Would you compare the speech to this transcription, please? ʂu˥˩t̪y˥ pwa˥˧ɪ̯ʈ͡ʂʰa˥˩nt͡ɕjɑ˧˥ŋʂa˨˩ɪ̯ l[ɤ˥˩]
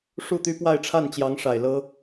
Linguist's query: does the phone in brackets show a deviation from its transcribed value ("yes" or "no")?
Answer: yes